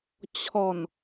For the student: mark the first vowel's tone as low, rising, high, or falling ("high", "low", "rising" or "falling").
low